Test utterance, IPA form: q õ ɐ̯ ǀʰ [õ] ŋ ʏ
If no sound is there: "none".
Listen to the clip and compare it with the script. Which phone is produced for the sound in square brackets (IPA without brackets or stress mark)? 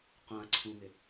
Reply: ũ